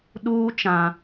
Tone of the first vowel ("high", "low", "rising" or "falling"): high